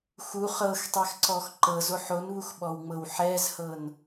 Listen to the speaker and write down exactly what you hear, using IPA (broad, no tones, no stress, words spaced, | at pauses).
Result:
xu χɤxtˤɛxǀɔx ǃɤzoħ onβuxɓɔwŋ͡mɤw ħɛzhɤn